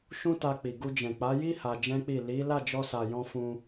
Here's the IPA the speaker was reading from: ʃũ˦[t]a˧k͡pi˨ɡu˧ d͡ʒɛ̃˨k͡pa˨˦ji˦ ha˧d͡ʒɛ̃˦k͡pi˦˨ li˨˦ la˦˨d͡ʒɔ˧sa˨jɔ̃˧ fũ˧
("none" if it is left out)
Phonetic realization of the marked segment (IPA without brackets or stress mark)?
t